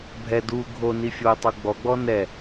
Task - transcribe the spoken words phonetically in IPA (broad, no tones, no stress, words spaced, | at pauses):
bʱɛ du ɡʱo nifʲotˤo ɡ͡bɔɡ͡bɔ nɛ